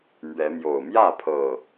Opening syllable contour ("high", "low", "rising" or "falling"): rising